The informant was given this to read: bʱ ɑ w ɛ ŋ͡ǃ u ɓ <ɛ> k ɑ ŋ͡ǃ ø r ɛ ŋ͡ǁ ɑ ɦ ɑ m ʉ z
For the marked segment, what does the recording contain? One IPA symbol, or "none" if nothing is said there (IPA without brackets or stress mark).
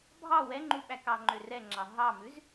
æ